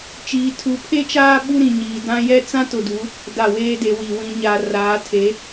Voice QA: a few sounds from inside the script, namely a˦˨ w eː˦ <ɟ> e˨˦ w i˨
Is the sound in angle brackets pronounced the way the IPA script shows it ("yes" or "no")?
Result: no